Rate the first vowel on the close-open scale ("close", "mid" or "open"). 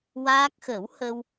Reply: open